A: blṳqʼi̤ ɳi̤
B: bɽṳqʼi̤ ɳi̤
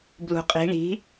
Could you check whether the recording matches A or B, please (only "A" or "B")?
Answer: A